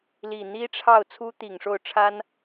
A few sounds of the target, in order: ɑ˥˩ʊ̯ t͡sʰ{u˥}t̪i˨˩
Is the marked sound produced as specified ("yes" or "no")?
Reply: yes